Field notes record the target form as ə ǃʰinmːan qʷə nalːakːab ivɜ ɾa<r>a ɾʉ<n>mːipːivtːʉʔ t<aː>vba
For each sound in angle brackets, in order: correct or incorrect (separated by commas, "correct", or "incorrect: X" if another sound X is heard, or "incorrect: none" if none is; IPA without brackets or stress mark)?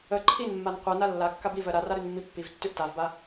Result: correct, correct, incorrect: a